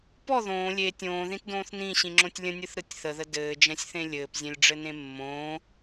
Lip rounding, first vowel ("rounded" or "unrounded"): rounded